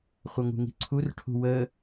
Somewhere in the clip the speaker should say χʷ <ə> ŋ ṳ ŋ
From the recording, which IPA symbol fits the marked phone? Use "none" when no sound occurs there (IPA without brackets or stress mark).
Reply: ʌ